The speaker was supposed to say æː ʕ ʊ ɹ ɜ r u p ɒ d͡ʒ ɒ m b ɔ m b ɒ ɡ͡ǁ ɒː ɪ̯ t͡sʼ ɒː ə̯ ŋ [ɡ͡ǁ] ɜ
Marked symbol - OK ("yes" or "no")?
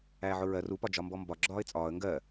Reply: no